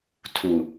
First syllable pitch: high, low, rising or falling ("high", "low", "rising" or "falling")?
low